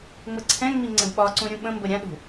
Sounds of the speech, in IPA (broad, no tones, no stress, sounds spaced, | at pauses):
ŋ͡m ə ǀʰ ɛ̃ ŋ͡m i ŋ͡ǀ ə̃ d ɓ ɒ ǀ ũ ɾʲ ũ ɓ ə̃ m b ə ɾʲ ã ɗ ṳ